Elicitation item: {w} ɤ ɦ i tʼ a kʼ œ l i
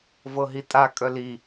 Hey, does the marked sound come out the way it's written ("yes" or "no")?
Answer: no